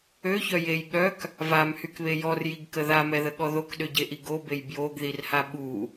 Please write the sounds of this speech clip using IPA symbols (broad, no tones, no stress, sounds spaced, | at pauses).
ø ç œ j e j ɠ œ k | v a m h y k β e j ɔ r j i ɡ k ə ð a m ɛ ð ə ɠ ɔ ð o k ɗ ø ɟ e ʔ i ɡ o b e j b j o ɡ ð i r h a ɓ u